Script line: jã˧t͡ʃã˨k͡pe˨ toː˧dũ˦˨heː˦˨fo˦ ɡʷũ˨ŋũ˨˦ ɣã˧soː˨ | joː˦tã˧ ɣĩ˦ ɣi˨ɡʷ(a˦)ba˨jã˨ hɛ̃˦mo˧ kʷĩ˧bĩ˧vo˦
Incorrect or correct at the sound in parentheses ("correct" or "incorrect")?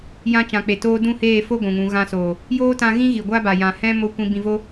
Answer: correct